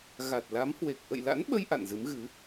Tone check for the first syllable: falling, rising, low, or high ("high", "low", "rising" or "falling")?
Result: low